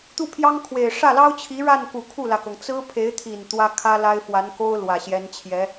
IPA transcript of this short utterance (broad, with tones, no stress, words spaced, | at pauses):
t̪u˥˩pʰjɑ˥ŋkʰwe˨˩ɪ̯ ʂä˥˩lɑ˥ʊ̯t͡ɕʰi˧˥ ɻa˥˩nku˨˩ kʰu˥˩lä˩kɤ˩ŋ t͡sɹ̩˥pʰe˧˥ɪ̯t̪ʰi˨˩n t̪wä˥ kʰä˥la˥ɪ̯fwa˧˥n ko˥ʊ̯ lwä˨˩ɕjɛ˧˥nt͡ɕʰjɛ˧˥